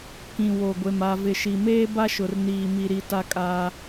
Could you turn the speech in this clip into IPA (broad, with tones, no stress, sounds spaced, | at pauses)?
k ĩ˨ w o˨ ɡʷ e˨ m a˨ v ɪ˨ ʃ i˨ m eː˦ b a˦ ʃ ʊ˨ r n iː˨ m i˨ ɾ i˨ t a˦ kʼ aː˦